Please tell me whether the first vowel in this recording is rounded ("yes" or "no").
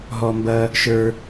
yes